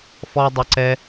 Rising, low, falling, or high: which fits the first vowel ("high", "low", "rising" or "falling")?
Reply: high